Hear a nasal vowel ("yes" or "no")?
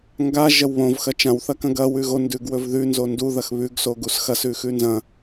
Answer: yes